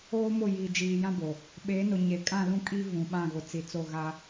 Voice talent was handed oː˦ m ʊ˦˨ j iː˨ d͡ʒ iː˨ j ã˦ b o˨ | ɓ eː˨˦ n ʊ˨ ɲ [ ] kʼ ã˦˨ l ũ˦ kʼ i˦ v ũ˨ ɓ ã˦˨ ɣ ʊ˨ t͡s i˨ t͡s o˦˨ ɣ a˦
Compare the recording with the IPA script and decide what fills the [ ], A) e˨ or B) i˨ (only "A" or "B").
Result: A